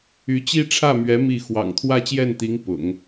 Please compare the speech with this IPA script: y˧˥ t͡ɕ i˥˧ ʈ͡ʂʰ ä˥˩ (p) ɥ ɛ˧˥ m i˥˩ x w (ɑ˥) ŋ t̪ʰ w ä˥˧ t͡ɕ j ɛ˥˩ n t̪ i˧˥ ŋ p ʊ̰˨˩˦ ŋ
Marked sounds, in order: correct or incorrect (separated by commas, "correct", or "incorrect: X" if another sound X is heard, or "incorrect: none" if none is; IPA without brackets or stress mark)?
incorrect: m, incorrect: ɑ̰˨˩